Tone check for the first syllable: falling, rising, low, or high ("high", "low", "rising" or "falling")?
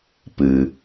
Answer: low